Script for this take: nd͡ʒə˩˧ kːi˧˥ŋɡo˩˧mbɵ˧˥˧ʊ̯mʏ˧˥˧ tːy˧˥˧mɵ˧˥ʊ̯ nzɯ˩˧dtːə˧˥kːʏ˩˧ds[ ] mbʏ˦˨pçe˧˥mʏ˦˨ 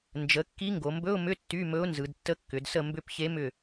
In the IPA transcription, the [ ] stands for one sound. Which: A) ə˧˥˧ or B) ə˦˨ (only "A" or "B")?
B